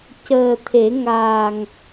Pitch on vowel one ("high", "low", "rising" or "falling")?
low